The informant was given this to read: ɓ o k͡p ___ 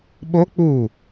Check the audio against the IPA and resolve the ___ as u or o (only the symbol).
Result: u